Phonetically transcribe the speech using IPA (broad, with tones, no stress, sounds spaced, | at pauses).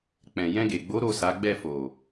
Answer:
k͡p ɛ̃˨ j ɛ̃˧ ɡ e˨ ɡ͡b o˨˦ ɾ o˦˨ s a˨˦ ɡ͡b ɛ˦˨ f o˨